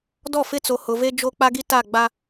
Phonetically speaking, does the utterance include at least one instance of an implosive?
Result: no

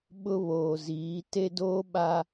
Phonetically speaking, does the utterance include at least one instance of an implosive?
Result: yes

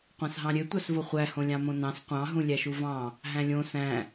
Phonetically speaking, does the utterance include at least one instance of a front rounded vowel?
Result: yes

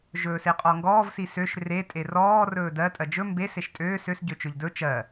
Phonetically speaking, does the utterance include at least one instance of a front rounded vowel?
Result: yes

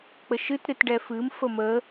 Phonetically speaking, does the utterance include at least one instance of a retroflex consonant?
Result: yes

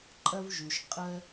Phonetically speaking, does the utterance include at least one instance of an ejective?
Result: yes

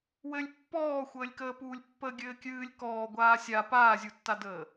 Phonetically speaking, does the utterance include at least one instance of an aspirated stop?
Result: no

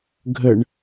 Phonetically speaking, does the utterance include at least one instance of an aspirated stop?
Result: no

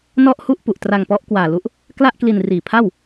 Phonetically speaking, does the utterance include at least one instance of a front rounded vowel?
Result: no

